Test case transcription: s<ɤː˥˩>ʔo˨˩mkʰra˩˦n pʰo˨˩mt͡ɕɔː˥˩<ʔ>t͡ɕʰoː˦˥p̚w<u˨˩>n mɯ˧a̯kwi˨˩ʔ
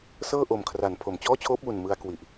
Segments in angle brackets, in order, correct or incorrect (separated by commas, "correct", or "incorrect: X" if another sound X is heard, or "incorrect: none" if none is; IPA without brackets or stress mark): correct, incorrect: none, correct